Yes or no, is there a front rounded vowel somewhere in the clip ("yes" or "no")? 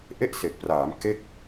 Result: no